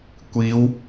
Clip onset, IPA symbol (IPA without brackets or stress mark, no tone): kʷ